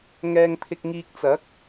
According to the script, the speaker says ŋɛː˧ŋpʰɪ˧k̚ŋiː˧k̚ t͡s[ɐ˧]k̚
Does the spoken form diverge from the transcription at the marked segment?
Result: yes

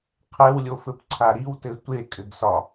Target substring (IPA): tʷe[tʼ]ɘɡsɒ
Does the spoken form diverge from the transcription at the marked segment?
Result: yes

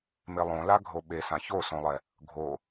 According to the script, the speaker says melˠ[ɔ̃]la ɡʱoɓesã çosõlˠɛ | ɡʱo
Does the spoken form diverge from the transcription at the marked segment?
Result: yes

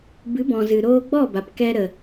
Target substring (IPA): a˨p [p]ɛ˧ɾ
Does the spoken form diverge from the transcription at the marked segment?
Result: yes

